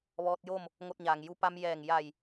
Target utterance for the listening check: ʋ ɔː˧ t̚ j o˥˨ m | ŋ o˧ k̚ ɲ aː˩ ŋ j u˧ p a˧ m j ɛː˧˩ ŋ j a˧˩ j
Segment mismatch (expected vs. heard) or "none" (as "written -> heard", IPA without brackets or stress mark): k̚ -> t̚